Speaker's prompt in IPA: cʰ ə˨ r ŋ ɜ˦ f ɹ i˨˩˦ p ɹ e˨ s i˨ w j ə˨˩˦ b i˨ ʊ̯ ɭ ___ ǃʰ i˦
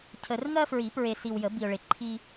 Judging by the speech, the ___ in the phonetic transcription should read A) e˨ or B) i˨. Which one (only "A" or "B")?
A